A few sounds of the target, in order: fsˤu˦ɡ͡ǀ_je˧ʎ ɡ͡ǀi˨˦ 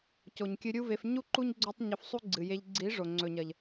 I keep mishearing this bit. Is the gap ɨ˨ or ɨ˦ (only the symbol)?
ɨ˨